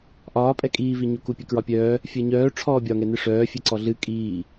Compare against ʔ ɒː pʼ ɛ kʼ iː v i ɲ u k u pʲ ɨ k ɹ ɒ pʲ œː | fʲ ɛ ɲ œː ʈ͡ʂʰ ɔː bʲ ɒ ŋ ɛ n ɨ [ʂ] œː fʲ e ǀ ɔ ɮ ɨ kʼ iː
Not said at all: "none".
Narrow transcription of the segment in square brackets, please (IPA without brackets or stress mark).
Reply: ʂ